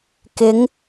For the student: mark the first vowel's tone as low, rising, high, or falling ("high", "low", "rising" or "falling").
rising